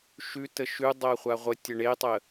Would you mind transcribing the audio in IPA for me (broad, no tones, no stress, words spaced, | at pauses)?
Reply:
ʃʉ təʃʉ dˤɜχʷaʁʷə tʲəɳetˤə